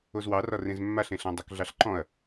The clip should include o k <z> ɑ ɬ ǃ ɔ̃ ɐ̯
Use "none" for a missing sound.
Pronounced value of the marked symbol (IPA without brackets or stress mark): ɮ